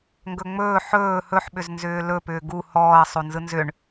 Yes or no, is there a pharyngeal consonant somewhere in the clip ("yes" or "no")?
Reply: yes